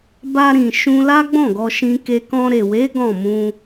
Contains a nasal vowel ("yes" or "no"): yes